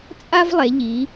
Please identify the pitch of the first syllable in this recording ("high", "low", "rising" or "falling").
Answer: high